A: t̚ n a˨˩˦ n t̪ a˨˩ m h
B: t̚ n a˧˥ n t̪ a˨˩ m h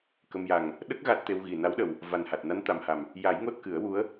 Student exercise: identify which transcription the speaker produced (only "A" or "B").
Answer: B